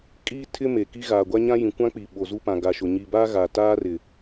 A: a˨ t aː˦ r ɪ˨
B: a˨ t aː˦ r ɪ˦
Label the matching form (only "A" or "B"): A